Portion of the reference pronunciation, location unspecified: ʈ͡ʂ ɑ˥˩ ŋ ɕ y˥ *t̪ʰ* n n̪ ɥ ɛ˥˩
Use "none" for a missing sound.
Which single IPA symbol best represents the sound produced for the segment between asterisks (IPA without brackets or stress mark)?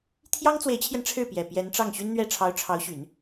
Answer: none